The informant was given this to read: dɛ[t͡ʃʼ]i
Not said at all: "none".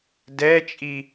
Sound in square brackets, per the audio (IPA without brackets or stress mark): t͡ʃʼ